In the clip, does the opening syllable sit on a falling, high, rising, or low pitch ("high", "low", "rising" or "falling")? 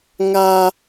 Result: high